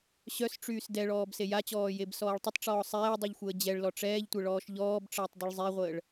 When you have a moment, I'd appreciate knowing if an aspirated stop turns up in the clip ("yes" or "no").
no